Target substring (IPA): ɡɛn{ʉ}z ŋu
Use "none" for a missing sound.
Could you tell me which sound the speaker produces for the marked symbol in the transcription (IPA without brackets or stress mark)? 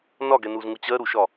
u